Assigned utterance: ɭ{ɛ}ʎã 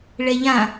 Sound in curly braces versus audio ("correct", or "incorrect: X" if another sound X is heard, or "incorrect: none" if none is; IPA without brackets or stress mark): correct